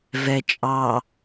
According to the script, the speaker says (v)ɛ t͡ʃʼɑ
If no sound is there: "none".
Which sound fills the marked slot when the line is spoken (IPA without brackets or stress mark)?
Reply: v